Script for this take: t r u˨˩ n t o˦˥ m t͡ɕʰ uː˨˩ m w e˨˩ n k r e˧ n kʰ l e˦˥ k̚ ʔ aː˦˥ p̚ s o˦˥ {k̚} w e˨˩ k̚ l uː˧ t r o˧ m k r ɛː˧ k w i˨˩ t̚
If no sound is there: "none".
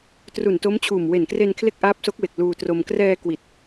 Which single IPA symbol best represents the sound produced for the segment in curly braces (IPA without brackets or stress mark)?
k̚